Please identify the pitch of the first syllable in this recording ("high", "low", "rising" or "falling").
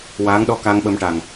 rising